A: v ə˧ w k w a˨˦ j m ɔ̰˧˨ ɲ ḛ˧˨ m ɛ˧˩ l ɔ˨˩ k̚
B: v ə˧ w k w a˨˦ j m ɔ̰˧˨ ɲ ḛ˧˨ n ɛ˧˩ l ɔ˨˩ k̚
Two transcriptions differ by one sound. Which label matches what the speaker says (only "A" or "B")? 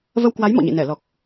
B